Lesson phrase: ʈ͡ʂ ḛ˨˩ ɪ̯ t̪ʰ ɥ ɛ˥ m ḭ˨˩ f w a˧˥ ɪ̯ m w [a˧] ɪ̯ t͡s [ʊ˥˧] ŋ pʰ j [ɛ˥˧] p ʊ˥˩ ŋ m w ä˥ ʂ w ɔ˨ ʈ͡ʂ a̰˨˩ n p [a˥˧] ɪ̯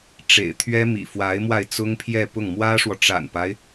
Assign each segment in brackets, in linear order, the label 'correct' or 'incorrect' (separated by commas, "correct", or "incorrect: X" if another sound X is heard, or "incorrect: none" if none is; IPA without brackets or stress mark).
correct, incorrect: ʊ˥, correct, incorrect: a˦